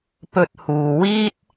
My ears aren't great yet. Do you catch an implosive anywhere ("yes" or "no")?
no